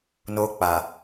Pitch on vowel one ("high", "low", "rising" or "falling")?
high